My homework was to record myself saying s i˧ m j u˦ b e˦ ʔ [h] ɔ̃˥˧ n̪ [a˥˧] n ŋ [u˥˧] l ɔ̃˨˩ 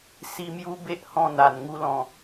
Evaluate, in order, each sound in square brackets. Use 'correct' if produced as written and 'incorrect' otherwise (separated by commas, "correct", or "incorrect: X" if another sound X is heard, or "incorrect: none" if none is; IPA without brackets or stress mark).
correct, incorrect: a˨˩, correct